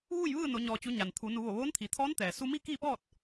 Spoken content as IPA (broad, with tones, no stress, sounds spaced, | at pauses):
ʋ uː˥˨ j ʋ ɯː˥˨ n o˩˧ ɲ ɔː˩ t͡ɕ u˩˧ ɲ a˩ n t̪ʰ u˩˧ n u˩˧ ʋ o˧˩ ʋ oː˧˥ n t̪ʰ i˩ t̪ʰ ɔː˧˥ n t̪ ɛː˩ s u˧ m i˥˨ k iː˥˨ p ɔː˥˨ t̚